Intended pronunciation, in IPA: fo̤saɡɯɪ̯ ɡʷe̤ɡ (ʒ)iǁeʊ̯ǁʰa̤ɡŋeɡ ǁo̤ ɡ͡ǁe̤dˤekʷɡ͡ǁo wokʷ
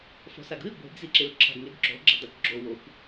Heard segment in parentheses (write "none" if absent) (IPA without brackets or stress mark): z